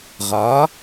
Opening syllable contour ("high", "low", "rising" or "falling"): rising